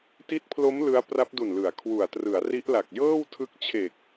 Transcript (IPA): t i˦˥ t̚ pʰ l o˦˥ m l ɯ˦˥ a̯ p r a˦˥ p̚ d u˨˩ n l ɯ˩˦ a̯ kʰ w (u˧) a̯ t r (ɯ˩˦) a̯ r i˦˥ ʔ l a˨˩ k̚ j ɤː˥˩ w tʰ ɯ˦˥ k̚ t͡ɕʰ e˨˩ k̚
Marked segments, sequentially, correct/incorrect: incorrect: u˨˩, correct

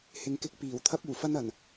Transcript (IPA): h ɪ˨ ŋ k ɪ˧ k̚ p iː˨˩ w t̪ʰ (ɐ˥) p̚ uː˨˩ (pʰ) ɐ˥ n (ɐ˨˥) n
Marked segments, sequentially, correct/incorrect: correct, incorrect: f, incorrect: ɐ˨˩

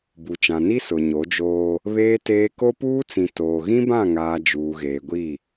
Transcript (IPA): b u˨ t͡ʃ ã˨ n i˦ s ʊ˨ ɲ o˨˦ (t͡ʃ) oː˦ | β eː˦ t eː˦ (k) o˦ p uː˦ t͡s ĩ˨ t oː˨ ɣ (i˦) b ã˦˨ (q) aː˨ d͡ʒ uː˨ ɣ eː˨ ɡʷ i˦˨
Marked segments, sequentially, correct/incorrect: incorrect: d͡ʒ, correct, incorrect: ĩ˦, incorrect: ŋ

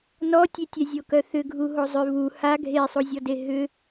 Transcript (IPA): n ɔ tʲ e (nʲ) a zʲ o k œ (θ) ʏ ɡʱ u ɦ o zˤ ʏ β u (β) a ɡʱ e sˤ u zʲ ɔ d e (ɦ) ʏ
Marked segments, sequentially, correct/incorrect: incorrect: tʲ, correct, incorrect: h, correct

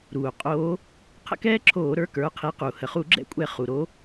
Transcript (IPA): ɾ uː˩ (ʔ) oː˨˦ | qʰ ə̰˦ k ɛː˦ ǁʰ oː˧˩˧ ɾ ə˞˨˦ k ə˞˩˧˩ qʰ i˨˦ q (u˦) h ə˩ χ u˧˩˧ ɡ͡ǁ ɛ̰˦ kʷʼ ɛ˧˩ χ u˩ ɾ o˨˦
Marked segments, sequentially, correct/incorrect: incorrect: qʼ, incorrect: u˩

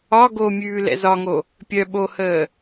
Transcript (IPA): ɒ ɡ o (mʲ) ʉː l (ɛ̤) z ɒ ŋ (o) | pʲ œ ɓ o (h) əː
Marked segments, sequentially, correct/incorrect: correct, incorrect: ɛ̰, correct, correct

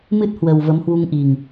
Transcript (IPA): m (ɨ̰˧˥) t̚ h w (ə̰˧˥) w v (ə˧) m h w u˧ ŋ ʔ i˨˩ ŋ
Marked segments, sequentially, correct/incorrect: incorrect: ɨ˦˥, incorrect: ə˨˩, incorrect: ə˨˦

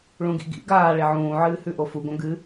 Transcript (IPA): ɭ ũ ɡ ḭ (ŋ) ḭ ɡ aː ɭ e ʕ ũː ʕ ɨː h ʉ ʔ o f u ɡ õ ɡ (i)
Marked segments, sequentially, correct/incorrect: incorrect: ɡ, incorrect: ɨ

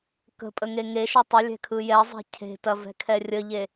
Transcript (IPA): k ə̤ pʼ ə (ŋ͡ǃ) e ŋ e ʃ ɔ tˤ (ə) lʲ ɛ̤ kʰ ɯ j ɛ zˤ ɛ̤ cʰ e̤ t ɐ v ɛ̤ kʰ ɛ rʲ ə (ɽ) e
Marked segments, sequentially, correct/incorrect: incorrect: ŋ, correct, incorrect: ʎ

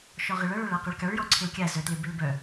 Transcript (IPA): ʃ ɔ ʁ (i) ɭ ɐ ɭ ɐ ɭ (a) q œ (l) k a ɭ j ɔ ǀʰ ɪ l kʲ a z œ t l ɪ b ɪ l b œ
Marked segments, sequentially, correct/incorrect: incorrect: ɪ, correct, incorrect: ɭ

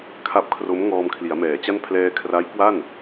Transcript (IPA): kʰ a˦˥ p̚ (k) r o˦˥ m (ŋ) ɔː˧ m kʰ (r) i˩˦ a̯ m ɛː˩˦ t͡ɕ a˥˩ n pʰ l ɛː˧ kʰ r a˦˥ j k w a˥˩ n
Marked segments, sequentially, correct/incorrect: incorrect: kʰ, correct, incorrect: l

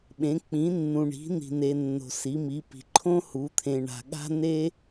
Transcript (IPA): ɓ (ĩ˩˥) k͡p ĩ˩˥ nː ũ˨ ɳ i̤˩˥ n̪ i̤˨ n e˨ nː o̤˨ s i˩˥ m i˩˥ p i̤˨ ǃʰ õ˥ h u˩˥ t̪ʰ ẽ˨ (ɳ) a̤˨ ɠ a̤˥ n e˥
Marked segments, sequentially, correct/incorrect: incorrect: ẽ˩˥, correct

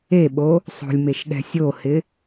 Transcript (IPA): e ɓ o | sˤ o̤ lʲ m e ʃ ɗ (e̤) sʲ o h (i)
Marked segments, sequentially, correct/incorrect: incorrect: ɛ̤, incorrect: ɪ

